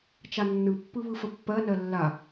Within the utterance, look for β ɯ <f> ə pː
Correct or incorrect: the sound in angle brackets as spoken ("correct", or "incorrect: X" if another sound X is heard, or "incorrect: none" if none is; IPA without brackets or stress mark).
correct